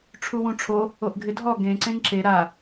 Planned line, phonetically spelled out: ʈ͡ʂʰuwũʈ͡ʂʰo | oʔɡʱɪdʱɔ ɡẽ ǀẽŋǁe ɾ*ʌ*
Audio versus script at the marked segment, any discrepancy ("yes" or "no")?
yes